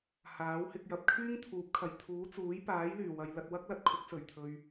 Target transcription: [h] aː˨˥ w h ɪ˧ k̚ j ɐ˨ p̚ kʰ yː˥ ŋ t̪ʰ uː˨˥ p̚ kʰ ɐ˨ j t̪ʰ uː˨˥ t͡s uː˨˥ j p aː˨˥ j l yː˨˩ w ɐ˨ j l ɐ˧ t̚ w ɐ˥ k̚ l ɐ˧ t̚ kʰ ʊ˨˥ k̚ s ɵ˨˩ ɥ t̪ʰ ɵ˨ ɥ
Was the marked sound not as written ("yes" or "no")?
no